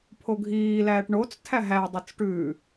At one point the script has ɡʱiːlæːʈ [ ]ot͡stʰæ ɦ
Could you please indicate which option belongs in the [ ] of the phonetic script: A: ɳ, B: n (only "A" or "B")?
A